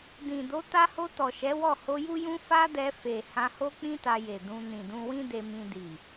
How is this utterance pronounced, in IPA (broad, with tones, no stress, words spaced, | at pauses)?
dĩ˨ do˨˦ ta˧ho˧ tɔ˨ʃɛ˨˦wɔ˦˨ ho˧ju˦jũ˦ fa˦dɛ˧ fe˨ hã˧ho˦ k͡pĩ˦ta˧je˨ dũ˧ nĩ˨dũ˧wĩ˦de˧ mĩ˧di˨